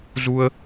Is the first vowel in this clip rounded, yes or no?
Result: yes